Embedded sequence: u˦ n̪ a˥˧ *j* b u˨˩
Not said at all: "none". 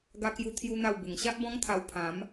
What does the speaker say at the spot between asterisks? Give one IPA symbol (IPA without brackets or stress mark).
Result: w